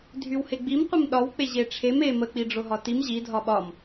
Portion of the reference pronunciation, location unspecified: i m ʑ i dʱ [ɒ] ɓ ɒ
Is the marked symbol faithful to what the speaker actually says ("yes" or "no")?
yes